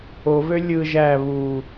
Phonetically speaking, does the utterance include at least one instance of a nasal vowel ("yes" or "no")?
no